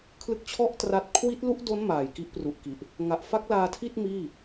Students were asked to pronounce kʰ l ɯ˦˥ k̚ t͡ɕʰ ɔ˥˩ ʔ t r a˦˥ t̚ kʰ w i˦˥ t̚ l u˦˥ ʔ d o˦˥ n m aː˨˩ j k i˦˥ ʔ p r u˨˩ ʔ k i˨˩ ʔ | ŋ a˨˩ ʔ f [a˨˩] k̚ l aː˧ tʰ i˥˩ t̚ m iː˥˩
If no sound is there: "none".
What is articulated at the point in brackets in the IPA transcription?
a˦˥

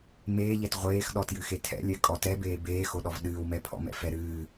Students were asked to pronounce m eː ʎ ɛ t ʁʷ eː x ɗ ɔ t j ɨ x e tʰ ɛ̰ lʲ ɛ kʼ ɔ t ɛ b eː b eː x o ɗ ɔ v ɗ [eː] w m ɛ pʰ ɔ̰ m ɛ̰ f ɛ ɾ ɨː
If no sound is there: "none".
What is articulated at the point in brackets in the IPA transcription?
ɨː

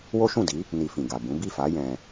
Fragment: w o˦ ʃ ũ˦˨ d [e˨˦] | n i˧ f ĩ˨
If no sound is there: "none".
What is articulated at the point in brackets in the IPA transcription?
i˨˦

